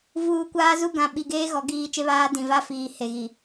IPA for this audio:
v uː˨ kʷ aː˦ z u˦ ɡ ã˨ ɓ i˨ ɡ eː˦ ɣ ɔ˨˦ ɡ iː˦ t͡ʃ e˦ β aː˦ d ĩ˨ v a˦ f iː˨ h e˨ ɣ i˨

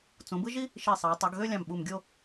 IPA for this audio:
t͡s ũ˩˧ b ɯ˥ ʒ i˥ | ʃ i˧˩ sˤ e˩˧ ʊ̯ tˤ o˩˧ ɡ ɣ ø˥˧ lʲ ɑ̃˧˩ m ɓ u˧˩ m ɡʲ o˥˧

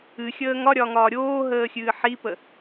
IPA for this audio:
ɨ xʲ əː ŋ ɒ ɾʲ ɒː ŋ ɒː ɾʲ oː ɦ əː xʲ ɨː ħ i p ə

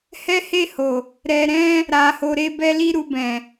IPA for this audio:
h ɛ˦ h e˦˨ h o˨ | ɾ ɛ˧ ɾ ɛ̃˦ | ɾ a˧ h o˧ ɾ e˦ b ɛ˦ l i˦ ɾ u˧ b ɛ̃˨

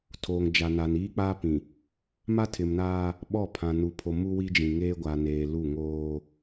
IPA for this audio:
tʰ oː˨ ŋ d͡ʒ a˨ n a˨ n iː˦ k͡p a˦ p ĩ˨ | m a˦ tʰ ɪ˨ m n aː˦ | ɓ ɔ˦˨ pʰ ã˨ n u˨ pʰ o˨ m u˦ w i˦ d͡ʒ ĩ˨ ŋ eː˦ ɡʷ a˨ n eː˨ l u˦˨ ŋ oː˦

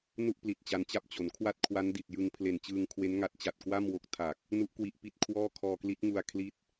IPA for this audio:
n u˥˩ ʔ p l i˨˩ t̚ t͡ɕ a˦˥ n t͡ɕ a˥˩ p̚ t͡ɕ o˩˦ n kʰ w a˥˩ t̚ kʰ w a˦˥ n d i˨˩ t̚ j ɯ˧ ŋ pʰ l e˨˩ n t͡ɕ ɯː˧ ŋ kʰ w e˦˥ n ŋ a˦˥ t̚ t͡ɕ a˨˩ t̚ k w a˥˩ m w o˦˥ k̚ tʰ a˨˩ k̚ | n u˦˥ ʔ k w i˦˥ ʔ p i˦˥ t̚ kʰ w ɔː˥˩ kʰ ɔː˧ k l i˦˥ t̚ ŋ u˧ a̯ kʰ l i˦˥ t̚

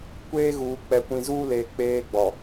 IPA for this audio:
kʷ eː˦ ɣ uː˨ k͡p ɛ˨ kʷ ĩ˨ z uː˦ l eː˨ k͡p eː˦ ɡ͡b ɔ˨

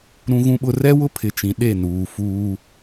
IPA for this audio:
ɾ ũ˦ ɣ ũ˦ ɓ ʊ˦ r ɛ˦ w ʊ˦ pʰ ɪ˨ t͡ʃ ĩ˨ ɗ e˦˨ n uː˨ f uː˦

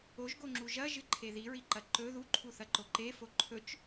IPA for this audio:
o ʒ ɡ o ŋ͡ǁ u ʒ ɐ ʒ ɨ ǃʰ e ð i ɹ i ǃ ɐ ǃ ɵ ð u ǃʰ u θ ɐ ǃ o ǃ e f o ǃʰ ɵ t͡ʃ

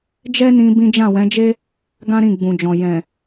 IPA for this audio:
d͡ʒ ɛ˦ n ĩ˧ b ĩ˦ d͡ʒ ã˦˨ w ɛ̃˨˦ d͡ʒ e˦ | ɡ ã˦ ɾ ĩ˦˨ ɡ͡b ũ˨ d͡ʒ ɔ̃˨ j ɛ̃˨

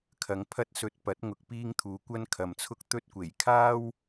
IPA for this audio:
kʰ ɐ˨˧ ŋ pʰ ɐ˥ t̚ s ɵ˧ t̚ p ɐ˨˥ t̚ ŋ ʊ˨ k̚ p iː˧ ŋ t̪ʰ uː˨˧ kʷ ɐ˥ n kʰ ɐ˨ m t͡sʰ ʊ˥ k̚ t̪ ɵ˥ t̚ kʷ e˨˩ j kʰ aː˥ w

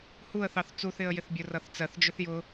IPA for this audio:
h u ə̯ θ ɑ θ t͡s u θ ɪ ə̯ j ɪ θ bʲ ʊ r ʌ θ t͡s ɜ θ d͡ʒ ʊ θ j ʊ

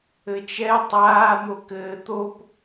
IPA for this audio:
ɘ t͡ʃ ɛ tˤ aː n̪ o k ɘː t̪ o p

